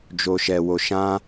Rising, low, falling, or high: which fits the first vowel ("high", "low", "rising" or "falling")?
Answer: low